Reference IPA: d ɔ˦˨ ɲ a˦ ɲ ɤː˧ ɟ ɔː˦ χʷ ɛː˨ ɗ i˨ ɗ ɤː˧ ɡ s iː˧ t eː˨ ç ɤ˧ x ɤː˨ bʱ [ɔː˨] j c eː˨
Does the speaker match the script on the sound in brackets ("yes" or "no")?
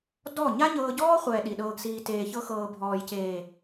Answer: yes